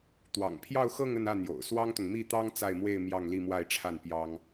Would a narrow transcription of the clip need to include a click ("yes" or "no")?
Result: no